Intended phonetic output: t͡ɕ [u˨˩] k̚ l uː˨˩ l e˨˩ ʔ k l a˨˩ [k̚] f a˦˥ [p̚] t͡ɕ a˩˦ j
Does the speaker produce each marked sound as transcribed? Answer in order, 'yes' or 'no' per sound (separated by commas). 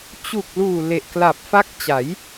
yes, no, no